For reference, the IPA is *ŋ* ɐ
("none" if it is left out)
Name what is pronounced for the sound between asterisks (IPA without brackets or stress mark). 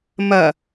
m